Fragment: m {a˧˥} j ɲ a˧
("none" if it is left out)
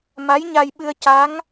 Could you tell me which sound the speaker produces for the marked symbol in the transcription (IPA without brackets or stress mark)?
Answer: a˧˥